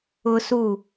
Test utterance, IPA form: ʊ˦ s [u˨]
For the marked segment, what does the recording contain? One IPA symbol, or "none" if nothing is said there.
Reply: u˦˨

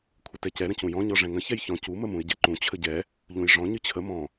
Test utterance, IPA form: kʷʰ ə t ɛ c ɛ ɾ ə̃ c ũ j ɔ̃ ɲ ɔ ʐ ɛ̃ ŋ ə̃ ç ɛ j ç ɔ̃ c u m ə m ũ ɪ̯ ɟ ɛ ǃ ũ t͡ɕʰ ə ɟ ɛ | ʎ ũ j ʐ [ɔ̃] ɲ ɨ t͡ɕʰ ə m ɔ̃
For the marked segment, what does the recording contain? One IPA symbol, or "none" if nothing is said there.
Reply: ɔ̃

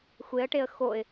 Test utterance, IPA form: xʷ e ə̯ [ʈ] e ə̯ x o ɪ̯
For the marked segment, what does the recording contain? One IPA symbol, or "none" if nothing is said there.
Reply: ʈ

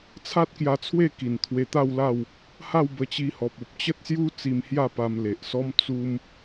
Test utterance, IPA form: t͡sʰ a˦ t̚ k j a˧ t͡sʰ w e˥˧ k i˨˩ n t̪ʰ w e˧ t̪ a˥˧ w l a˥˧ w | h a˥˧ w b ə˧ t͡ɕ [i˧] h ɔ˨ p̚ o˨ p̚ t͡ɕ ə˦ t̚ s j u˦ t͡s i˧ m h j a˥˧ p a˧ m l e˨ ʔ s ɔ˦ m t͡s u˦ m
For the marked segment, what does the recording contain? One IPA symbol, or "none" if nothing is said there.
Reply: i˧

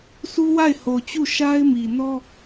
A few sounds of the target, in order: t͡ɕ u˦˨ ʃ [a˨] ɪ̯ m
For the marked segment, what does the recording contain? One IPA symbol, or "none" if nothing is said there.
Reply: a˦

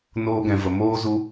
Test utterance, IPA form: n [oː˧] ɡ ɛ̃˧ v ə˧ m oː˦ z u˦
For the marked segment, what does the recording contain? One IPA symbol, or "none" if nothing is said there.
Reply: oː˦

